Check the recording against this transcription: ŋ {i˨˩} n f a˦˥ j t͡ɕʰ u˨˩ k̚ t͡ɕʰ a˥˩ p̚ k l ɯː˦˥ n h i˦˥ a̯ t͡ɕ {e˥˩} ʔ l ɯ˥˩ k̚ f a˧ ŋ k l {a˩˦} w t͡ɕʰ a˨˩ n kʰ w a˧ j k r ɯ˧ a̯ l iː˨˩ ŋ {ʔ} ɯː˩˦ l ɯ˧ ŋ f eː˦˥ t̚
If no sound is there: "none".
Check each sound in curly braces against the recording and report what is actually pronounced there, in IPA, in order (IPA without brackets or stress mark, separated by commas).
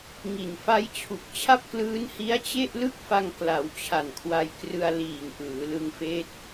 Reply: i˨˩, e˥˩, a˩˦, ʔ